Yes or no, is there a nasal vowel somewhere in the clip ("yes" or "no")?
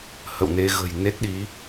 no